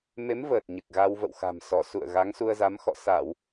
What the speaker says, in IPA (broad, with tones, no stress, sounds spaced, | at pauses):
m e˨˦ m v əː˨˩ t̚ ɲ ɨ˨˩ k̚ ɣ a˧ w v ə̰˧˨ w x a̤˨˩ m s ɔ˧˩ s ṵ˧˨ ə̯ ɣ a˨˦ ŋ s u˧ ə̯ z a˨˦ m x ɔ̰˧˨ s a˧˩˨ w